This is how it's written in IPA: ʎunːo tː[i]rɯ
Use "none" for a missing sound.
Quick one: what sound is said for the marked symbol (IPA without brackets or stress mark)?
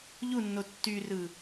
y